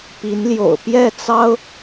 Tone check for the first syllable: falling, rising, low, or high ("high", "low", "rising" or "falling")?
rising